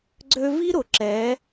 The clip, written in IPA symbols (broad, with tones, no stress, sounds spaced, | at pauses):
ɡ͡ǀ ø˥ v i˥ ɾ ʊ˩ ǁ ɛ˩˧